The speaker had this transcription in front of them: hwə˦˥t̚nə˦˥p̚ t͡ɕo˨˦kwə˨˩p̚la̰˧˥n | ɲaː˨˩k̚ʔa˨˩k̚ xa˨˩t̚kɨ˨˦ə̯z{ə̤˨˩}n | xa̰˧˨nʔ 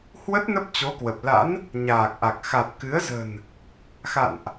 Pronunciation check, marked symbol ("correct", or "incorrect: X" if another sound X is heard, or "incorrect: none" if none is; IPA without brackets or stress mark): correct